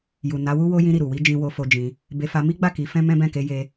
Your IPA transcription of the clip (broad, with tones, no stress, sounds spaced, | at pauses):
j u˨ n a˨˦ w u˦ w o˧ j ĩ˧ ɾ i˨ ɾ u˨ w i˧ d͡ʒ ĩ˧ w o˧ f o˧ d͡ʒ ĩ˧ | b e˧ f a˧ m i˦ ɡ͡b a˦˨ k i˧ f ɛ̃˦ m ɛ̃˦ b ɛ̃˦˨ k e˧ j e˧